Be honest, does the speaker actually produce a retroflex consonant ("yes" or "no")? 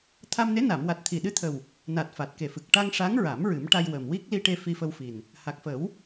yes